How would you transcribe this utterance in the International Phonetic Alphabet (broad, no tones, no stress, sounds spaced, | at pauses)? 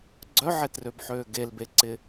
ɡ͡ǀ œ ʕ e t r ø b ħ øː ɡ e l b e ǀ ɪ